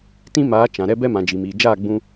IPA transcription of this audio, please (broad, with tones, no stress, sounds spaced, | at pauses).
t ĩ˦ m aː˨˦ t͡ʃ ã˨ ɾ ɛ˦ b ɛ˦ m ã˨ d͡ʒ i˨ m iː˨ d͡ʒ aː˦˨ ɡ͡b ũ˧